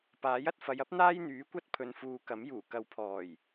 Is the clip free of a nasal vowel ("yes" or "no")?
yes